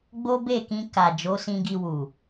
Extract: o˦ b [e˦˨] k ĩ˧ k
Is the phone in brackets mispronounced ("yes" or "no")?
no